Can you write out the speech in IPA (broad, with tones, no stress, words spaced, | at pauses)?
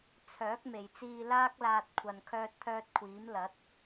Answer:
t͡sʰœː˨˥k̚ me˨jt͡siː˧ laː˥k̚laː˧t̚ kʷʰɐ˨n kʰœː˧t̚t̪ʰœː˧t̚kʷʰiː˨˥m lɐ˨˥t̚